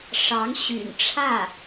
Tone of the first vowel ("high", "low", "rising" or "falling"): rising